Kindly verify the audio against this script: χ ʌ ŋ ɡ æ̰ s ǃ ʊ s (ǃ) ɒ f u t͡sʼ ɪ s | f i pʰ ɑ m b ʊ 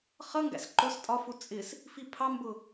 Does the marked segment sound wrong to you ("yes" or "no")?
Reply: yes